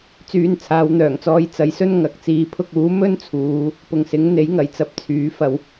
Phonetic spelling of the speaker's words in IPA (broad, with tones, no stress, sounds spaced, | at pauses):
t͡s yː˧ n t͡sʰ aː˨˧ w n̪ œː˨˩ ŋ t͡s ɔː˧ j t͡s ɐ˨˥ j s ɵ˥ n ŋ ɐ˨ k̚ t͡s iː˨ pʰ ʊ˧ k̚ uː˨˥ m ɵ˥ n t͡sʰ uː˨˧ | p ʊ˨ ŋ s ɪ˨˥ ŋ n̪ e˨˥ j ŋ ɐ˨˩ j t͡s ɐ˧ p̚ t͡sʰ yː˨˥ f ɐ˧ w